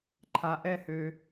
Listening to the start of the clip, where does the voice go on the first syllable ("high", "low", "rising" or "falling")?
high